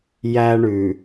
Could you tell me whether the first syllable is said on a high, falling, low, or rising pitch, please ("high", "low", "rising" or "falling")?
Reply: high